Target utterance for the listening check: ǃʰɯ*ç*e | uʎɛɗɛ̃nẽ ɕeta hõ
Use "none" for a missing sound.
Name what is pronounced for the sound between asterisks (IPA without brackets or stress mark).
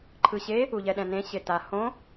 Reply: ɕ